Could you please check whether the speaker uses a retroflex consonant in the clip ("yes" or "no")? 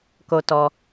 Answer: no